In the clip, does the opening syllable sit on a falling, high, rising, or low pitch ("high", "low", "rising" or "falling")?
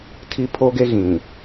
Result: high